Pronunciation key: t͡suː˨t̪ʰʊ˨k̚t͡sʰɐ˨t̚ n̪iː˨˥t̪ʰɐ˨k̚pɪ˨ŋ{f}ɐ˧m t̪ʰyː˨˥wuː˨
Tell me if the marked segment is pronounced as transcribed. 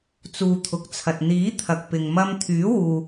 no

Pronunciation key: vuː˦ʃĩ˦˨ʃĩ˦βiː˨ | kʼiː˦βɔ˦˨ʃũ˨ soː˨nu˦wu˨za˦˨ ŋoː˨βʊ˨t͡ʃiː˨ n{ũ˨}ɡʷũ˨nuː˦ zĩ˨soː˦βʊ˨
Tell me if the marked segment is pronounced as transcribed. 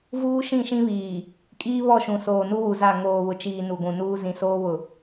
no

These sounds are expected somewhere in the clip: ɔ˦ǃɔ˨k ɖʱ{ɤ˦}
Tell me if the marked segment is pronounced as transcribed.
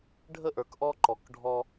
no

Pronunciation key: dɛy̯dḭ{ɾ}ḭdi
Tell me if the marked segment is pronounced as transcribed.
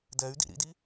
yes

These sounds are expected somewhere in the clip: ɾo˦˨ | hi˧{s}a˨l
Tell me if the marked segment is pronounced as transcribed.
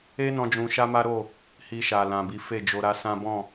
no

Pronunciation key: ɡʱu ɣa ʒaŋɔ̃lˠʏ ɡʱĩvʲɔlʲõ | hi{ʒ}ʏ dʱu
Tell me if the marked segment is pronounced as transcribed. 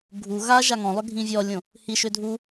no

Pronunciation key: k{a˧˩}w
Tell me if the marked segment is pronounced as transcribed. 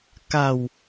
yes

